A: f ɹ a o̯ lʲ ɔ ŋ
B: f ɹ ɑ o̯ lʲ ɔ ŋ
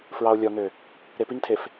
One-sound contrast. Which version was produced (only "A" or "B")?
B